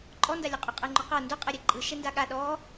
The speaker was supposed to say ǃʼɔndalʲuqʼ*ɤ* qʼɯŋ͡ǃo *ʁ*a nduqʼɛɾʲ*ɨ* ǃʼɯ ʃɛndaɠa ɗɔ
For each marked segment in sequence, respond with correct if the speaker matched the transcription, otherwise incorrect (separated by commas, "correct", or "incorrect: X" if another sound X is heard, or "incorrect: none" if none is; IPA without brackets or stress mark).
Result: incorrect: o, incorrect: q, incorrect: ɛ